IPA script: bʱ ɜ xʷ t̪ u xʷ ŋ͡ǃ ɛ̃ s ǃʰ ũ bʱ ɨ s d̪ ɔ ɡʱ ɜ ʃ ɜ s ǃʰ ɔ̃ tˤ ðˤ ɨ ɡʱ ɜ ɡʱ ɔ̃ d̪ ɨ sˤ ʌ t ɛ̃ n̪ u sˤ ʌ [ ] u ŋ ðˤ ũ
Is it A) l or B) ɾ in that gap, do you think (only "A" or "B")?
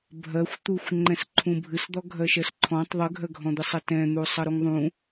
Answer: B